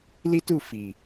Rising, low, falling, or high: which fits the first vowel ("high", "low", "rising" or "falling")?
high